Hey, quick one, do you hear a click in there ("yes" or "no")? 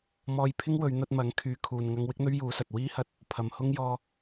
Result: no